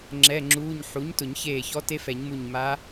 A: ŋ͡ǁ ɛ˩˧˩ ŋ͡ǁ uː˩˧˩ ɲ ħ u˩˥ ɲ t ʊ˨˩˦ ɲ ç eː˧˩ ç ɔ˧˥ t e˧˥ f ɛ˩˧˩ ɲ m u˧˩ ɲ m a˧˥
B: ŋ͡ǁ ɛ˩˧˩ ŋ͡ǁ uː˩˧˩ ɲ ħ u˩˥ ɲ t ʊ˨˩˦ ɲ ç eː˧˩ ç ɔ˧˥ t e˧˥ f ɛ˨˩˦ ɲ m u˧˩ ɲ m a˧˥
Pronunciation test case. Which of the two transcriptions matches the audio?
B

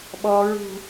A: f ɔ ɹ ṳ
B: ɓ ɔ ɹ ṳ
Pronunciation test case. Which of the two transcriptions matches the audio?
B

